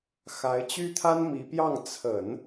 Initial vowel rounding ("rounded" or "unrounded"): unrounded